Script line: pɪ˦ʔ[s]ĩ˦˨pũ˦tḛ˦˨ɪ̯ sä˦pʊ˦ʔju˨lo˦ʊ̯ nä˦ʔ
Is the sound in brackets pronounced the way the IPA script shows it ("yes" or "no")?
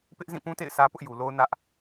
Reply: no